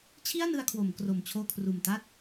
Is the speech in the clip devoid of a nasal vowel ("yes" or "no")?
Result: yes